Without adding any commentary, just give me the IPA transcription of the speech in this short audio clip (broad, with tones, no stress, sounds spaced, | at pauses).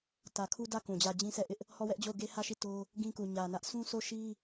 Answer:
t ä˨ kʰ u˦ d ä˦˨ k ũ˨ d͡ʑ ä˦˨ d͡ʑ ĩ˦ sʰ ɛ˦˨ ʔ ɪ˦ ʔ | h ɔ˦˨ w ɛ˦ ʔ d͡ʑ o˦˨ ʊ̯ ɡ e˦ h ä˦˨ ʃ i˦˨ t o˦ | ɡ ĩ˦ k u˨ ɲ ä˨ n ä˦ ʔ s ũ˦ sʰ o˦˨ ʃ i˦